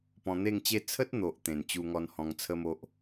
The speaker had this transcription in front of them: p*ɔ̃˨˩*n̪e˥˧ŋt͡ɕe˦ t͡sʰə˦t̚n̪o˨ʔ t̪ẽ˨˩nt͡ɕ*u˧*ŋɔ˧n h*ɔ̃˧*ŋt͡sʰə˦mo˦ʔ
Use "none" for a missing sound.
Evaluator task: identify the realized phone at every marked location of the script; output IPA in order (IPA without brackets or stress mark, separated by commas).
ɔ̃˧, u˧, ɔ̃˧